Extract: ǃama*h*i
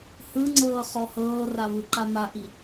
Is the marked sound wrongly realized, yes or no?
yes